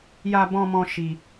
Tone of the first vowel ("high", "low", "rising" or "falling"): high